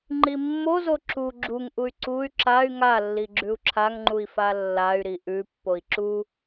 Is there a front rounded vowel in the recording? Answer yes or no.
yes